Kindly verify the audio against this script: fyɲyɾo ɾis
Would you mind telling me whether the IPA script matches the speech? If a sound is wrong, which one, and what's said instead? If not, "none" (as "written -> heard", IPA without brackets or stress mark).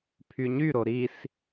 f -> pʰ